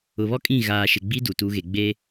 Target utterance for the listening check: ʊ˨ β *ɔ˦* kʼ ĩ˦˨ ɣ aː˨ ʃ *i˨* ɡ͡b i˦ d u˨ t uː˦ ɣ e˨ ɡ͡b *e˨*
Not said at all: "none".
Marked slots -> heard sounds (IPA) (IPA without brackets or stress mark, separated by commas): ɔ˦, ɪ˨, e˦